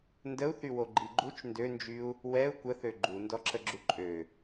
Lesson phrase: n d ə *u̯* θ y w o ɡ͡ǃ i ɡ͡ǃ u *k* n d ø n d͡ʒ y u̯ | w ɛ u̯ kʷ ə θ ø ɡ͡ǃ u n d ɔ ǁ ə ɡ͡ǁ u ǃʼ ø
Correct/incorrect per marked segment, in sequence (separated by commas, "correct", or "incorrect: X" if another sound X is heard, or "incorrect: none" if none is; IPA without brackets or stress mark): correct, incorrect: t͡ʃ